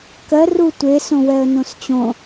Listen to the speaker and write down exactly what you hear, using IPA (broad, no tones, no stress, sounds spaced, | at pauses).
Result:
k ɜ r u tʷ e s õ w ɛ ə̯ n õ s t͡ɕ õ